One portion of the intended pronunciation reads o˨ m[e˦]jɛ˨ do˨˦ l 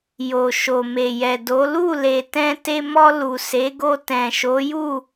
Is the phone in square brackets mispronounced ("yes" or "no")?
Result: yes